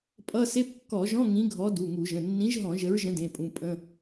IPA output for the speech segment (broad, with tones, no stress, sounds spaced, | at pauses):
pʼ ʌ˧˥˧ s e˧˥˧ p kː ɔ˧˩˧ ʒ ɔ̃˧˥˧ ŋ ĩ˨˥ ɡʱ ɔ˨˥ d u˩˧˩ ŋ u˧˩˧ ʒ ə̃˩˧˩ nː ĩ˨˥ ʒ ɦ ɔ̃˧˩˧ ʒ ə˨˥ ɹ ʒ ə̃˨˥ d ẽ˩˧˩ pʼ ũ˩˧˩ pʼ ə̃˧˥˧